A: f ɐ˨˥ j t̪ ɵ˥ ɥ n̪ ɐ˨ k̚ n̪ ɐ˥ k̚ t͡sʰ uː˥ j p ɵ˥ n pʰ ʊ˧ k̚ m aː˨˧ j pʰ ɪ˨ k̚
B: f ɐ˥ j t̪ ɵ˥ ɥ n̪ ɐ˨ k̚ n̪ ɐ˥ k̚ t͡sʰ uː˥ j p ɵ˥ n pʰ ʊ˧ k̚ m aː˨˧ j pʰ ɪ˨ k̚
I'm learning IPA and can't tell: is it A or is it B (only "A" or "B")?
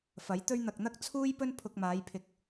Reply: A